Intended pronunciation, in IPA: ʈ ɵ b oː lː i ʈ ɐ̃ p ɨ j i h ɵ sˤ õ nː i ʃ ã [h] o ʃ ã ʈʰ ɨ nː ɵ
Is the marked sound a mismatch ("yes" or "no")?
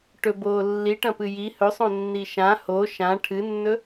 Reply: no